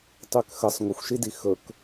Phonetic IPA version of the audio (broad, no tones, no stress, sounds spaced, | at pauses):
tˤ y k x ə sˤ ŋʷ ə xʷ ʃ i d i x ɵ k